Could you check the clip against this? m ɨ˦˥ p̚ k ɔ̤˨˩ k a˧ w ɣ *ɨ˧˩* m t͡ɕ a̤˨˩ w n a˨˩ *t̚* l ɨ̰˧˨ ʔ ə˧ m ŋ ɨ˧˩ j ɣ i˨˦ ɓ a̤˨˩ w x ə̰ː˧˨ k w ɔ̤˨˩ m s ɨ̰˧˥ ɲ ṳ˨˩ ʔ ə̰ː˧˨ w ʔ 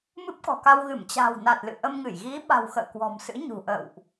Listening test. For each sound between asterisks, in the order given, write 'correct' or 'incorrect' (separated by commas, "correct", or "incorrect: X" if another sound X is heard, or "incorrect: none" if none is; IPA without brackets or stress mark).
correct, correct